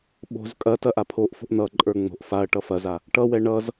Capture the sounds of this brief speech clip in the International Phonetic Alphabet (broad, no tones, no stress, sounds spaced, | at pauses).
ɓ o̤ z kʼ ɐ t ɐ ʔ a pʰ o ʔ f o̤ ʔ n ʌ ǃʼ ə˞ ŋ͡m o̤ ʔ f a ɐ̯ ʈ ʌ f ɐ z a | ʈ ʌ w ɛ ɳ ʌ z